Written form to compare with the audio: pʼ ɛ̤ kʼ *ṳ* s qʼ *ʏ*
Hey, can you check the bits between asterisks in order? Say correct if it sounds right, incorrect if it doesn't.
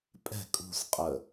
correct, incorrect: ə

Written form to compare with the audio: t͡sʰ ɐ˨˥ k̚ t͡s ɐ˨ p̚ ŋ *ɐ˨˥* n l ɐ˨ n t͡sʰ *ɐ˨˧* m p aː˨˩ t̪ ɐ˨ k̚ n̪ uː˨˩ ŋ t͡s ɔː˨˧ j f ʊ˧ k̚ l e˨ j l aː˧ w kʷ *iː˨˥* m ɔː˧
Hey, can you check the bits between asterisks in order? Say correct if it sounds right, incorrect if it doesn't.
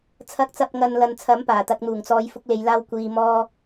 incorrect: ɐ˨, incorrect: ɐ˨˥, incorrect: iː˨

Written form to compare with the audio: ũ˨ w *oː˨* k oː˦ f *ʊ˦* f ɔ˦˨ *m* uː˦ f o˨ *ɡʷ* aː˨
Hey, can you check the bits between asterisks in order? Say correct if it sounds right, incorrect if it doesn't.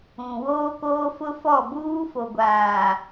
incorrect: oː˦, correct, incorrect: b, correct

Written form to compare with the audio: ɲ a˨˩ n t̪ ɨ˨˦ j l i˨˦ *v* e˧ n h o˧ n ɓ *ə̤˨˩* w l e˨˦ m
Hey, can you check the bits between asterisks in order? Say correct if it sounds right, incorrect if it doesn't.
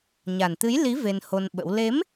correct, incorrect: ə̰˧˥

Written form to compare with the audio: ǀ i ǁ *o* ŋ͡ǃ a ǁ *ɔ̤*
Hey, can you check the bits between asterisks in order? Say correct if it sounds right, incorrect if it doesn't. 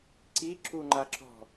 incorrect: u, correct

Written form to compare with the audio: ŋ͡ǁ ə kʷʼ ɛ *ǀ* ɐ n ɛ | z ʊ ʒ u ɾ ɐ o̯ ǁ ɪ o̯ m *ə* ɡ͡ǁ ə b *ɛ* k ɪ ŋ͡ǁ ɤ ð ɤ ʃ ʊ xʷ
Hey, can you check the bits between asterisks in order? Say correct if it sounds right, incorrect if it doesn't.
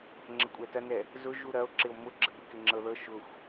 incorrect: t, incorrect: ʊ, incorrect: ɪ

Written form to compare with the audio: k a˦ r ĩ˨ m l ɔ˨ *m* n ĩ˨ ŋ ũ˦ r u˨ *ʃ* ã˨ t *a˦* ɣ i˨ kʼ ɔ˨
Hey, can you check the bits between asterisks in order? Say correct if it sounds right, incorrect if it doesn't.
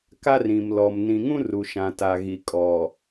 correct, correct, incorrect: a˨

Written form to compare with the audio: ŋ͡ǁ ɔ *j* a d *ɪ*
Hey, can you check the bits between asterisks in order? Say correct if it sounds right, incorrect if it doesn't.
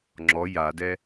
correct, incorrect: ɛ

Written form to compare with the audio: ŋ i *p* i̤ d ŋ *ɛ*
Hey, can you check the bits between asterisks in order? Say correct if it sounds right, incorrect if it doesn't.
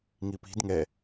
correct, correct

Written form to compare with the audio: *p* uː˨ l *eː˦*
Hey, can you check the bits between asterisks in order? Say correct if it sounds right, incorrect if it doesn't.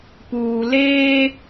correct, correct

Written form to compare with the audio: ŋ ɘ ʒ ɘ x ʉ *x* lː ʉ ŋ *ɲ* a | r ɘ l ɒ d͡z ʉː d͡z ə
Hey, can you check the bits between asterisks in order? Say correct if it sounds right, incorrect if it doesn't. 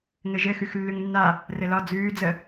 correct, incorrect: nː

